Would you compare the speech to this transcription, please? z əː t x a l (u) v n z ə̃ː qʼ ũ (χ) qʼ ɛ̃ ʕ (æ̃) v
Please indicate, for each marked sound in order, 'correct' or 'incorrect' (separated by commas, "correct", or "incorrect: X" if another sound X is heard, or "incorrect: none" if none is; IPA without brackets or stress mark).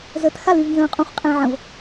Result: incorrect: y, correct, incorrect: ə̃